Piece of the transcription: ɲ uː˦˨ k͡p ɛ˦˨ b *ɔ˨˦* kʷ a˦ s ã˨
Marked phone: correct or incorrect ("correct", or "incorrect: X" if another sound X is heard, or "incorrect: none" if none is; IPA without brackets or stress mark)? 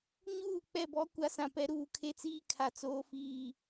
incorrect: ɔ˦